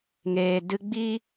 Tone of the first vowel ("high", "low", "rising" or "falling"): low